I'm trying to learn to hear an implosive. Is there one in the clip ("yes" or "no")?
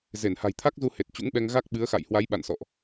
yes